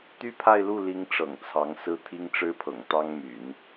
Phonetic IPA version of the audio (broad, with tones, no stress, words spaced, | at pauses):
t̪y˥pʰa˥˧ɪ̯lu˥˩li˧˥ŋ ʈ͡ʂɤ̰˨˩ŋt͡sʰɑ˧˥ŋsɹ̩˥ t̪ʰi˥ŋʈ͡ʂɻ̩˥pʰɤ̰˨˩ŋ t̪ɑ˥ŋmy̰˨˩˦n